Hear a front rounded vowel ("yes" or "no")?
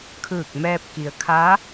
no